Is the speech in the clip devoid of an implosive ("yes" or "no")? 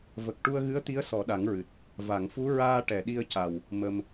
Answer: no